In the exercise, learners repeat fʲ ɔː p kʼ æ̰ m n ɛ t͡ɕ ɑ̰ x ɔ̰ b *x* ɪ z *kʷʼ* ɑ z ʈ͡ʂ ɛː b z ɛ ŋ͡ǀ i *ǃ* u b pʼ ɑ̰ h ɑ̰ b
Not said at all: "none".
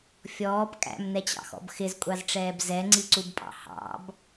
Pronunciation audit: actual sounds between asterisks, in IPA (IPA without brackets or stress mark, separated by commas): x, kʷʼ, ǀ